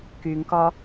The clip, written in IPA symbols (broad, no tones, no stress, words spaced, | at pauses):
kyŋkɒ